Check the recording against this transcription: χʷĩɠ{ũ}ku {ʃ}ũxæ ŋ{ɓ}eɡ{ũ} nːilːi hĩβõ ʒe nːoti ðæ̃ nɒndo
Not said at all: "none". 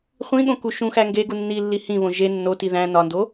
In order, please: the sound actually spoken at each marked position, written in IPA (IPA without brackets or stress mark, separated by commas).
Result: õ, ʃ, ɡ, u